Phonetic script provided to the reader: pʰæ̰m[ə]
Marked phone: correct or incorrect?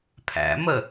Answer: correct